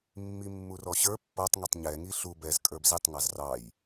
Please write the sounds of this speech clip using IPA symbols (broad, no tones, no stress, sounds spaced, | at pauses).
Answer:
mː i mː u r ɔ ɕ ə˞ pː ʌ tˤ ŋ ɛ tˤ ɲ ɛ ŋ i ɬ u b ɛ z kʼ ə˞ b z i tˤ ŋ ɑ z r ɑ j